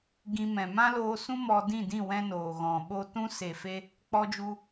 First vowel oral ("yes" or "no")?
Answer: no